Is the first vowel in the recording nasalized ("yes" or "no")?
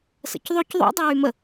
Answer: no